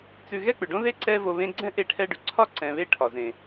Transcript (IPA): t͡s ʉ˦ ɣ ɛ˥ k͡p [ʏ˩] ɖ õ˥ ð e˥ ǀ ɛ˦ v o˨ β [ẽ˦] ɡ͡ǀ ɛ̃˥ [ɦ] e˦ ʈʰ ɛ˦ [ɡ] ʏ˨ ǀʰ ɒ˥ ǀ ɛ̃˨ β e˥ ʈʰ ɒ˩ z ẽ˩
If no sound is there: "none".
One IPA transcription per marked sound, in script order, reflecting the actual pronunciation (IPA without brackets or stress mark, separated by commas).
ʏ˩, ẽ˦, ʔ, ɖ